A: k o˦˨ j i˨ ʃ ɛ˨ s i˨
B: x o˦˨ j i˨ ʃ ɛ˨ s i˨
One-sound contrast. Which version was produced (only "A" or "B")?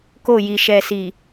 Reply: A